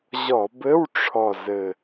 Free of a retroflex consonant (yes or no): no